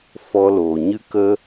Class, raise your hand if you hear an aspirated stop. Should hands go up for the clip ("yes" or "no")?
no